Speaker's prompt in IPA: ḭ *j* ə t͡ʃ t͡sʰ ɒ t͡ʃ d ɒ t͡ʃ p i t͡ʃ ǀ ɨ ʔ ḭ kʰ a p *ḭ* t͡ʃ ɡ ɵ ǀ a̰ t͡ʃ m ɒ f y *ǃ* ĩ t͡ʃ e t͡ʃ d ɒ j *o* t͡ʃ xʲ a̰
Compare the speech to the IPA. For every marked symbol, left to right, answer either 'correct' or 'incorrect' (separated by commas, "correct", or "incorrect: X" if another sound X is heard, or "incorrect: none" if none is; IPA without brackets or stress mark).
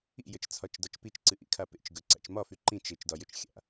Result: correct, incorrect: ḛ, correct, incorrect: ɵ